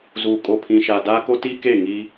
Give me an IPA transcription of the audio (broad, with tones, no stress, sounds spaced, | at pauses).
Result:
z u˨ kʼ o˨ pʰ ĩ˨ ʃ a˨ d aː˦ k o˦ t iː˦ k e˦˨ ŋ i˦